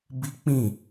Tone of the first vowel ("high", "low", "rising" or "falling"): high